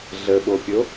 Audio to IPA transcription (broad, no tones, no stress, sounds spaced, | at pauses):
ɮ ə ɓ o pʲ o